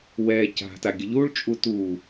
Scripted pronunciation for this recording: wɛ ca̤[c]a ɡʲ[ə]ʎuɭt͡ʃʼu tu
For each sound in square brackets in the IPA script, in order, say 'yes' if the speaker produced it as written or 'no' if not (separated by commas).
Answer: no, yes